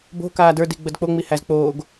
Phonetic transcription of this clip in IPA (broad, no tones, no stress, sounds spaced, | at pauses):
b o̤ k aː d ə˞ d i ɡ͡b ə d k͡p o ŋ͡m i h æ z k͡p oː ɡ